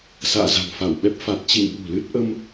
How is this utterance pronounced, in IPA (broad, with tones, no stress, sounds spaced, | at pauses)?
s a̰ː˧˨ z a̤˨˩ ŋ f a˧˩ w ɓ ɛ˦˥ p̚ f a˨˩ t̚ t͡ɕ ḭ˧˨ ŋ ɓ ṳ˨˩ l ɨ˦˥ t̚ ʔ ə˧ m